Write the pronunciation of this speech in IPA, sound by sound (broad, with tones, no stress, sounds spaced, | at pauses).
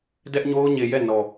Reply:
d ɛ˦ ʔ ɲ o˦ ʊ̯ ɲ e˨ j ɛ˦˨ n ɔ˨